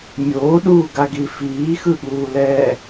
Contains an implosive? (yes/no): yes